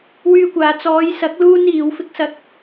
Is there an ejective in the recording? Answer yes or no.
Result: no